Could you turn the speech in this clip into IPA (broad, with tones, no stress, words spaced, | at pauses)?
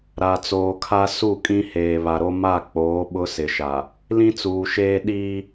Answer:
ɾa˨t͡soː˨kʰa˦ su˦˨kʼĩ˦heː˨ βa˨ɾo˦ ma˦˨k͡poː˨˦ ɓʊ˦sɪ˨ʃa˨ | lĩ˦t͡suː˨ʃeː˦ ɗiː˦